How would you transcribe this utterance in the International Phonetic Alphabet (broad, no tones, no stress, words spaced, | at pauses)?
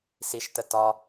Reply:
siʃtə tɒ